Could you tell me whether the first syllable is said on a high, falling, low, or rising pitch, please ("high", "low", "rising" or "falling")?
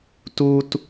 high